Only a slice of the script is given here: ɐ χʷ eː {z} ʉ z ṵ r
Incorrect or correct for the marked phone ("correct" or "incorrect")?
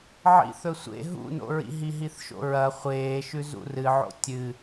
incorrect